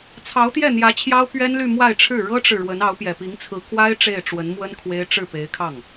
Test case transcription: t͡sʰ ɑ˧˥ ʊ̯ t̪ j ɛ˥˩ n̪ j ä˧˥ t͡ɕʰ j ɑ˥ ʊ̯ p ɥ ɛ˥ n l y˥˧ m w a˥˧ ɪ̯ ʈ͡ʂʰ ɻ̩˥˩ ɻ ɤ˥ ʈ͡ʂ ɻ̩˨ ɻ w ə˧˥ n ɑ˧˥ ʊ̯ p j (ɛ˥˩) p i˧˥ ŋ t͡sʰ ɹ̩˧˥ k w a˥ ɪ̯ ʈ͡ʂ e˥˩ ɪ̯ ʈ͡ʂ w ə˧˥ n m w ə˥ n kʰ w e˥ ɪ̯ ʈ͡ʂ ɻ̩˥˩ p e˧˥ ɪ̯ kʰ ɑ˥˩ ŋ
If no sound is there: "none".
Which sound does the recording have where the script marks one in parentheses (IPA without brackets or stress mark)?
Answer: ɛ˨˩